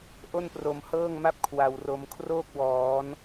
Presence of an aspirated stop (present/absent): present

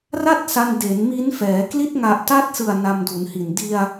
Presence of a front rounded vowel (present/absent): absent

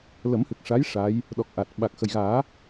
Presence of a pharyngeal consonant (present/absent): absent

